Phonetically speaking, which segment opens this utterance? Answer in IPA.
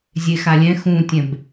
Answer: zʲ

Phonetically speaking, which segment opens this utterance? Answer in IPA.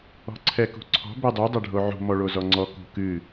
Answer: ɔ̤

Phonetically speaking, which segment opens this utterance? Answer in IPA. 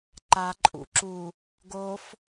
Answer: ǃ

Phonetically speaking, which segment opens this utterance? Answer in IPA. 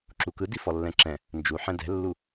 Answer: ǁ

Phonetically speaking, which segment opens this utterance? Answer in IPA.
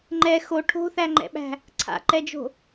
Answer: ŋ͡ǃ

